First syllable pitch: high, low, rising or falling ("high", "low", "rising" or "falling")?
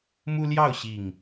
high